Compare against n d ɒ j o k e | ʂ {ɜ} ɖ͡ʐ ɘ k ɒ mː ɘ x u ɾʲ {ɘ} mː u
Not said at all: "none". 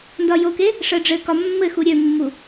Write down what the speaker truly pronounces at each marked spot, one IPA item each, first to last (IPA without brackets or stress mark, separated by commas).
ɜ, ø